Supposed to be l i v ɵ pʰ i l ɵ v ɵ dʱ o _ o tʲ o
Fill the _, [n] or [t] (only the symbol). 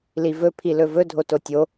t